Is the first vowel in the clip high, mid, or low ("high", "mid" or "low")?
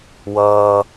mid